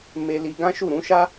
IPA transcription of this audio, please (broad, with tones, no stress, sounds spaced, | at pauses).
m e˧ l i˧ ɡ ã˦ ʃ u˦˨ ɾ ũ˨˦ ʃ a˦